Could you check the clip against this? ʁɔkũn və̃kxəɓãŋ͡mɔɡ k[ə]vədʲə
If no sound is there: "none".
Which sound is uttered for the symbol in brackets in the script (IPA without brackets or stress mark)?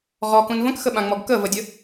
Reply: ə